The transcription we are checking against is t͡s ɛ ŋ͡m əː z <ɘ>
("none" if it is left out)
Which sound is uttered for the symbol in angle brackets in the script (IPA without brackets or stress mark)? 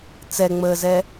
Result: ɛ